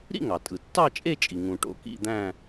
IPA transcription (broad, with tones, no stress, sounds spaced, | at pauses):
ɾ ḭ˥˧ ŋ ɑ˩ tʼ ɯ˩ tː ɑ˥˧ t͡ʃʼ e˥˧ t͡ʃʼ i˩ ŋ ũ˩ ʈ o̰˧ k ḭ˥˧ d̪ æ̃˥˧